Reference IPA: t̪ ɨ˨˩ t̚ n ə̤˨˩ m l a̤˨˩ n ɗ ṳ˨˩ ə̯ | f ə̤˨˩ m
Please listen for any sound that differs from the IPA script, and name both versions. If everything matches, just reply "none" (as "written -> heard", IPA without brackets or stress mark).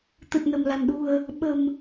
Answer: f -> ɓ